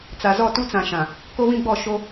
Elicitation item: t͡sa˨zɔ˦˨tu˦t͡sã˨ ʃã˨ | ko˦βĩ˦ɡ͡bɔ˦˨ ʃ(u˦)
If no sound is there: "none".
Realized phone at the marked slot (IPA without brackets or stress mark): o˦